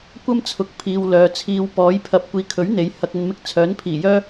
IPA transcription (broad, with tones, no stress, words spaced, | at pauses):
kʷɐ˥mt͡sʰʊ˨k̚ pʰiː˨wlœː˨ t͡sʰiː˨w pɔː˨˥j pʰɐ˨˥p̚kʷiː˨kʰɵ˨˥ɥ n̪e˨˥j hɐ˧k̚ɐ˧nmɪ˥k̚ t͡sʰœː˨˥npʰiː˨˩jœː˥